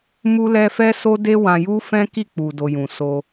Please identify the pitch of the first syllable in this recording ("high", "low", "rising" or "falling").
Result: high